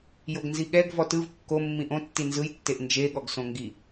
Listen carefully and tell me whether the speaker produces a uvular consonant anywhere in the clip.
no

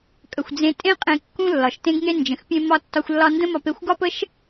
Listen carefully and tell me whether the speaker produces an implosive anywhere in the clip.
no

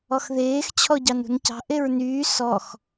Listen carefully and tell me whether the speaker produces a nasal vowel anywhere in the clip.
no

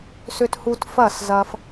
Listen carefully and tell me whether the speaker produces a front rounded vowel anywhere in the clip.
yes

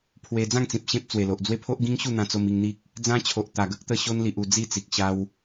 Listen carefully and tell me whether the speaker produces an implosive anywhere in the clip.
no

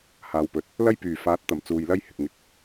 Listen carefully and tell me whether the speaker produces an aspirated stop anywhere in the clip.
no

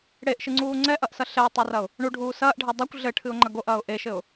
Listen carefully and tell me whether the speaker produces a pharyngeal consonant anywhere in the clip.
no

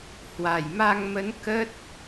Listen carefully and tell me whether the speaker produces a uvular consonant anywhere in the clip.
no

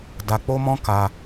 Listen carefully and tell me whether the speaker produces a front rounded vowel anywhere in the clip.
no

